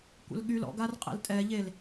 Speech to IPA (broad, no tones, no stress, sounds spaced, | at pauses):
kʷ ə̰ l ɠ y l ɔ̰ ɡ a r qʼ ɛ̰ l tʼ ɛ ʎ e l